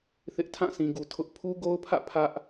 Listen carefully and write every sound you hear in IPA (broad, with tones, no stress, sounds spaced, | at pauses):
θ ɪ˦ ʔ tʰ ã˦˨ sʰ ĩ˨ ɡ u˨ tʰ ʊ˦ ʔ pʰ u˦ ɡ o˦ ʊ̯ pʰ ä̰˦˨ pʰ ä˦ ʔ